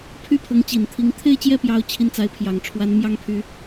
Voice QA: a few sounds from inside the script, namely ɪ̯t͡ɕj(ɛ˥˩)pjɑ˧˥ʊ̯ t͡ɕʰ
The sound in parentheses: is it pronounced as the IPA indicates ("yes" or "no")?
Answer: yes